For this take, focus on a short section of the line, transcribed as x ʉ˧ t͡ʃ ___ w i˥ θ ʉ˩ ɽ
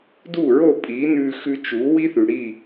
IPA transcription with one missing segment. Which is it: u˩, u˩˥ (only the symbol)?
u˩˥